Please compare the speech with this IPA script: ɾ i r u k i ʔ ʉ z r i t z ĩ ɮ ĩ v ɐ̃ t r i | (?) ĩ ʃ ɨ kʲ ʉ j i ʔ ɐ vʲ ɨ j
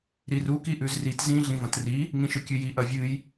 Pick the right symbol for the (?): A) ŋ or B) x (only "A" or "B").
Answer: A